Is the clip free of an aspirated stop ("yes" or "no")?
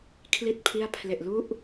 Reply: no